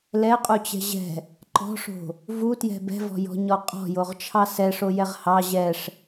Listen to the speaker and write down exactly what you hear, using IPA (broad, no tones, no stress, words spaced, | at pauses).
lɛqʼut͡ɕɛ̤ ʑɛ̤ | ǃɔ̤ʂo̤ | vutjɛ̤ bɛ̤vɔ̤jɔ̤ɲɔ qʼɔ̤joʁt͡ʃʰɑ sɛʂojɛʁ hɑ ʑɛʂ